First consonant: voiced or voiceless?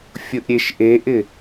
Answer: voiceless